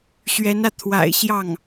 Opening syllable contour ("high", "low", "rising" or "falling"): rising